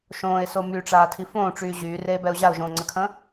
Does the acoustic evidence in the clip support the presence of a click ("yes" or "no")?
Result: yes